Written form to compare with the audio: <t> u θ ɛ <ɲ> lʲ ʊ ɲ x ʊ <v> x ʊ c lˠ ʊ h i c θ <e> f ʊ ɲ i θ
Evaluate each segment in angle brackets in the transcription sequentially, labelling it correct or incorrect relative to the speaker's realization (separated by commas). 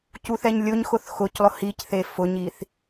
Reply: incorrect, correct, incorrect, correct